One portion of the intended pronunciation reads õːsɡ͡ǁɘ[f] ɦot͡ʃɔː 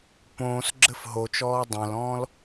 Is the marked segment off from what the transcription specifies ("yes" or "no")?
no